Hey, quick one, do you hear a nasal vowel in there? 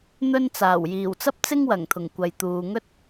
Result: no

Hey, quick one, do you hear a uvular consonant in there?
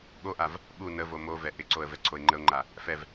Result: no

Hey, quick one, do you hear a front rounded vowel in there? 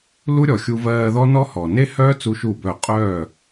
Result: yes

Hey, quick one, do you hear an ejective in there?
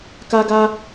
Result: no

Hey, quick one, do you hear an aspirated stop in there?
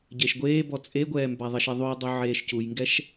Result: no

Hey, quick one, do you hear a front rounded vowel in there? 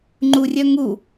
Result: yes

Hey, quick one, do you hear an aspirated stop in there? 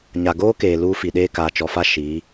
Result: no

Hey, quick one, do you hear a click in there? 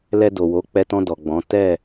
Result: no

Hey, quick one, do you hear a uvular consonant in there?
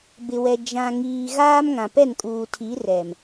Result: no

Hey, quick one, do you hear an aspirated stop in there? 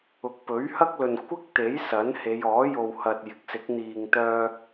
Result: no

